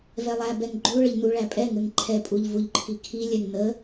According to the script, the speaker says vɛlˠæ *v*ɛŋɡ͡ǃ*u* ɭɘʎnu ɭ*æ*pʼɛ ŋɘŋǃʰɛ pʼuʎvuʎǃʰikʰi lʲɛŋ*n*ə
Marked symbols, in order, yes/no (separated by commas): no, yes, yes, yes